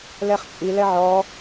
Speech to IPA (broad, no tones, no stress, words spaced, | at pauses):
lɛχt͡ʃʼi lɛʕɔ